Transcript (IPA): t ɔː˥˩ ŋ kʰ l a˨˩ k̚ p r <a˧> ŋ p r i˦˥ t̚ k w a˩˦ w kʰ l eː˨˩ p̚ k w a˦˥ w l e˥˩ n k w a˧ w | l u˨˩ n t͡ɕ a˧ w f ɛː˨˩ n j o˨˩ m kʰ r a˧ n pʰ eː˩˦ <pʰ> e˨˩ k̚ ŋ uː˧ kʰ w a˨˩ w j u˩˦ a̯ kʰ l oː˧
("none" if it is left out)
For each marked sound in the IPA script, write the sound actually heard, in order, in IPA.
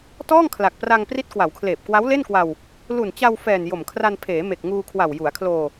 a˧, m

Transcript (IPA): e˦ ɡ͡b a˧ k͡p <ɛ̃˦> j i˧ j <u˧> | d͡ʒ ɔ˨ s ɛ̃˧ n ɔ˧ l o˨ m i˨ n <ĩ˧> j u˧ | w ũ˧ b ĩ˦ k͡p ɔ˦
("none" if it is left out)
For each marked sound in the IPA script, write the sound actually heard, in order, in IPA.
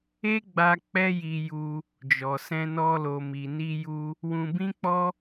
ɛ˦, u˧, i˧

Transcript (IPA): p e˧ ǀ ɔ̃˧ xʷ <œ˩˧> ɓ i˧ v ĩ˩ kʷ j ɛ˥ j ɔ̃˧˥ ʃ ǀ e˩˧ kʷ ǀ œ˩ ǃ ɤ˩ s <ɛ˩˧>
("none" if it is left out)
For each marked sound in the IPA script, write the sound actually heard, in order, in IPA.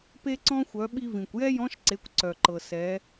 œ˩˧, ɛ˩˧

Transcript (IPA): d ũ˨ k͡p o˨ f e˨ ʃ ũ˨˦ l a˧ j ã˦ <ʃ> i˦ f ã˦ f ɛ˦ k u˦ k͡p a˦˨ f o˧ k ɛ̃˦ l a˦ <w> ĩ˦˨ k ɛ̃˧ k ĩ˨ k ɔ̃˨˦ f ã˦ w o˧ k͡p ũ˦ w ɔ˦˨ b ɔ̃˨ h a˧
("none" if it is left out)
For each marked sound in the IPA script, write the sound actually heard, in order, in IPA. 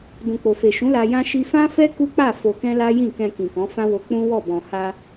ʃ, j

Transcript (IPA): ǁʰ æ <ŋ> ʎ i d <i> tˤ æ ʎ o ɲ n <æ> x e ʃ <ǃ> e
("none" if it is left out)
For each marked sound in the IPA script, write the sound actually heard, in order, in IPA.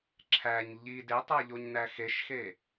ɲ, e, æ, x

